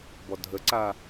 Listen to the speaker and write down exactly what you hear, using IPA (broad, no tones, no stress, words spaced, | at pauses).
bɔdʱəǀa